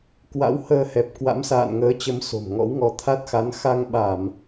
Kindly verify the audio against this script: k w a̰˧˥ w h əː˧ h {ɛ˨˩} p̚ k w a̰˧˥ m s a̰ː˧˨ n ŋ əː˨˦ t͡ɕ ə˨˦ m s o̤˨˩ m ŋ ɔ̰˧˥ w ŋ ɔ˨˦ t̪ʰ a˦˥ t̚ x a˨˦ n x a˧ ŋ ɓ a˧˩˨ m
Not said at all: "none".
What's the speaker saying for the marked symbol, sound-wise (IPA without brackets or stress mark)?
ɛ˨˩